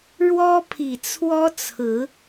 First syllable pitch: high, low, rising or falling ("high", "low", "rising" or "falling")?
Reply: high